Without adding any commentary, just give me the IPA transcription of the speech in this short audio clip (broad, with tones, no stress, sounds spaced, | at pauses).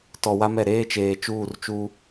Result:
t ɔ˨ w a˦ m ɛ˨ ɾ eː˦ t͡ʃ eː˨ t͡ʃ uː˦˨ r t͡ʃ u˦